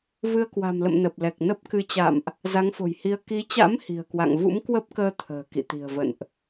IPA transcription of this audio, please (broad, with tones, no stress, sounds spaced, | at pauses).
v ɨ˧ ə̯ k w a̤˨˩ m l ə̰˧˨ m n ə˨˩ p̚ l ɛ˨˩ k̚ n ə˦˥ p̚ k ɨ˧ t͡ɕ a̰˧˨ m ʔ | z a˨˦ ŋ f o̤˨˩ j h i˧ ə̯ k i˨˦ t͡ɕ a̰˧˥ m h i̤˨˩ ə̯ k w a̰˧˨ ŋ v ṵ˧˥ m k w ə˦˥ p̚ k əː˧ t̪ʰ ə̤ː˨˩ k ḭ˧˨ t̪ i̤˨˩ ə̯ v ə̰˧˨ n ʔ